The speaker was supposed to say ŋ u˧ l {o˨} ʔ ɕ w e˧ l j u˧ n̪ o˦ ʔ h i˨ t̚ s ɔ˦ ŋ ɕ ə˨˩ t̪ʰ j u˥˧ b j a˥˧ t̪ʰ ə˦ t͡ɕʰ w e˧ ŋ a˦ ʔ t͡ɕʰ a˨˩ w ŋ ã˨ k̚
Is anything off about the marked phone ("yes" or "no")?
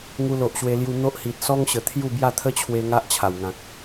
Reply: no